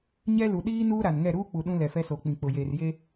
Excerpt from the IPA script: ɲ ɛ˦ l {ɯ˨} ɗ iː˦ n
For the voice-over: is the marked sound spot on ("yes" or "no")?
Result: no